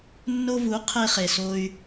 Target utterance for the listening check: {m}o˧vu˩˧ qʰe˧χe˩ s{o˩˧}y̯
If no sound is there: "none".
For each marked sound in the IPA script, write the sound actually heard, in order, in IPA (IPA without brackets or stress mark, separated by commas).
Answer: nː, o˩